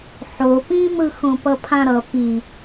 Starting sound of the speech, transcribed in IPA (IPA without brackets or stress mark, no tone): ħ